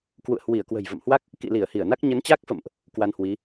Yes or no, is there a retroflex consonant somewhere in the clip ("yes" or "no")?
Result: no